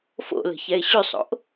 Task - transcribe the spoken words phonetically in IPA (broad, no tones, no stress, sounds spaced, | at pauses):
f o̰ l ə̤ ç ɛ ɪ̯ ɕ y sˤ o̰ ʔ